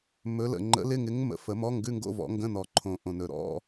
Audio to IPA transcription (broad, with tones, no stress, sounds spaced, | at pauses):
m ɵ˨˥ l ə̰˨˩ ŋ͡ǃ ə̰˨˥ l ɪ˧˥˧ ŋ ɪ˨˥ ŋ m ə̰˨˩˦ f ə˨˩˦ m ɔ˧˥˧ ŋ ɡ ʉ˧˥˧ ŋ ɡ o̰˧˥˧ v ɔ̰˨˩˦ ŋ ɡ ə̃˧˥˧ n ɔ˨˩ ǃʰ õ˨˩ ʔ õ˨˩ n ɵ˨˩ ɾ ɔ̰˧˥˧